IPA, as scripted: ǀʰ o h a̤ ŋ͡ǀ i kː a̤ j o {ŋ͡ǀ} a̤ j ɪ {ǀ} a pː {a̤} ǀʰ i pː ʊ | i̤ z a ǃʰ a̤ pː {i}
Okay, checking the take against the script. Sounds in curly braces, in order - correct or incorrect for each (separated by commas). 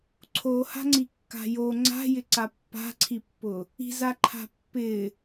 correct, correct, correct, incorrect